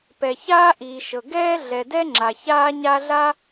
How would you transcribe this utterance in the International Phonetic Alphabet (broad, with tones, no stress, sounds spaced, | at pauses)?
p ɛ˩ ç aː˥ ʔ iː˩ ʃ ɤ˩ ɡ ɛː˥ ɮ ɛ˩ d ɛ˥ ŋ͡ǁ a˩ ç aː˥ ɲ a˥ ɮ a˥